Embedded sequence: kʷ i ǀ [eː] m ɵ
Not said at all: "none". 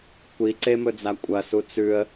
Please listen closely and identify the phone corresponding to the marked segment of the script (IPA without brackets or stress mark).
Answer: e